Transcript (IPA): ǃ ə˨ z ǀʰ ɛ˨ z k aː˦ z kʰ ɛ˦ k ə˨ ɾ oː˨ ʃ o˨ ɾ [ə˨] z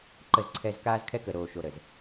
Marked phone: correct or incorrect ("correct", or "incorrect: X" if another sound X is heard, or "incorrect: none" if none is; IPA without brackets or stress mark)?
correct